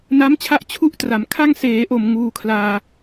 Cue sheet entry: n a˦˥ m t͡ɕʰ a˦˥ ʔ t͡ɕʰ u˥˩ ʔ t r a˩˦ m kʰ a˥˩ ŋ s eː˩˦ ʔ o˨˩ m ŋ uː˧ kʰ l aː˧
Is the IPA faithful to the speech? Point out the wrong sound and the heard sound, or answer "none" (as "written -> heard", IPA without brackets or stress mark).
none